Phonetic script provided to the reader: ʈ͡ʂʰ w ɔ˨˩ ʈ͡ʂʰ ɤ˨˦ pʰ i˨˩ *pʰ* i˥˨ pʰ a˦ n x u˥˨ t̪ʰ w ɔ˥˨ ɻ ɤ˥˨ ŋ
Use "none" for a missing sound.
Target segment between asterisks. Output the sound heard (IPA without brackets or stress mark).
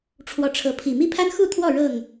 m